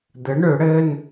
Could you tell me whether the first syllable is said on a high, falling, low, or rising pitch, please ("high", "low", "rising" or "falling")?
rising